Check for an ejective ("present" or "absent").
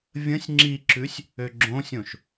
absent